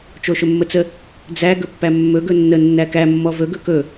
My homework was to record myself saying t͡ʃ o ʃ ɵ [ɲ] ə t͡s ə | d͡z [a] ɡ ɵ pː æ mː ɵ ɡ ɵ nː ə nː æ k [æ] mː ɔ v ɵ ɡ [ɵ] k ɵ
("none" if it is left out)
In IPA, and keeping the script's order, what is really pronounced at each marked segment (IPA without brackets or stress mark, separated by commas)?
mː, æ, æ, ɵ